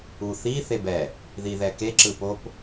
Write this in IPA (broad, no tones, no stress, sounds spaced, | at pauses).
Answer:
u θ i θ e b ɛ | ð i ð ɛ k e ǁ ɯ p o p